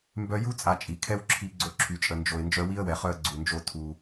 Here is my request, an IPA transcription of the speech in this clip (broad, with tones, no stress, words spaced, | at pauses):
mbœ˧ju˦ t͡sʼa˧t͡ʃʼi˨ kʰɛ˦wǁʰi˧ ɡ͡ǀo˧ǁʰy˨t͡ʃʼə˨nd͡ʒo˨ɪ̯ nd͡ʒœ˧wi˦ə̯wɛ˨χœ˧ə̯ ɡ͡ǀu˨nd͡ʒo˧ tʰu˧